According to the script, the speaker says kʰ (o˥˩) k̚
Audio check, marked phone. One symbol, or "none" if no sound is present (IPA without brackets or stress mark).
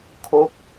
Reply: o˥˩